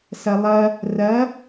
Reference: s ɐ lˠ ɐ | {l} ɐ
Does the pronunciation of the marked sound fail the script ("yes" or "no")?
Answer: yes